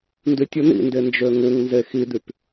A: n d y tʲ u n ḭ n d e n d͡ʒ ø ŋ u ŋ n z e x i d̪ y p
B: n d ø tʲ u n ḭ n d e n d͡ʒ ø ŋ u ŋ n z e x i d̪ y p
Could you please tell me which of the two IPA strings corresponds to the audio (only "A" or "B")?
A